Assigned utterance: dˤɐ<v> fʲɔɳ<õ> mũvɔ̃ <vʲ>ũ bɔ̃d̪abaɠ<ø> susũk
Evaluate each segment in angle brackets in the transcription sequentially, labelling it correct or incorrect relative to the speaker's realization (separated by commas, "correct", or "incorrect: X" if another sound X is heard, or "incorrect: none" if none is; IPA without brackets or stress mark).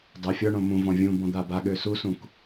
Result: incorrect: none, correct, correct, correct